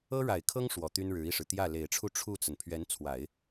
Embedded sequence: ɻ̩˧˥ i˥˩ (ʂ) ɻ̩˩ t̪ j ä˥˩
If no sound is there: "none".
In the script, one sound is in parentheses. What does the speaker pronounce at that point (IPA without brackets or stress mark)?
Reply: ʂ